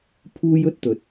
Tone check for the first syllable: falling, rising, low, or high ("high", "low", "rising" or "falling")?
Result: high